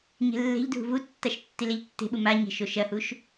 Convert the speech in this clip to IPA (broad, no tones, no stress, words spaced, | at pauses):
ɲe̤lːe̤ʎdʱṳ vutːaʃ tːileʎtːe̤ɓu maɲe̤ ʃoʃɐhuʃ